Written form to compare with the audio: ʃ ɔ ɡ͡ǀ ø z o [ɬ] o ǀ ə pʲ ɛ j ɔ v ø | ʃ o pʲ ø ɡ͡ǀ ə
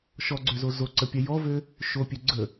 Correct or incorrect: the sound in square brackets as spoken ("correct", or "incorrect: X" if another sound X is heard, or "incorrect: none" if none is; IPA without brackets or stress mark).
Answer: incorrect: z